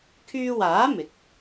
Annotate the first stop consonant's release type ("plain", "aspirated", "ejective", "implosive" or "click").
aspirated